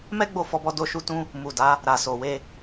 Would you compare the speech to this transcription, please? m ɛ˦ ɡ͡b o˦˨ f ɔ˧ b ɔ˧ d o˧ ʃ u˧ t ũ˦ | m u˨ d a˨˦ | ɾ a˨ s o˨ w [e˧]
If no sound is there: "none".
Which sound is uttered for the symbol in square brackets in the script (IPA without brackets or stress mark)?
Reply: e˧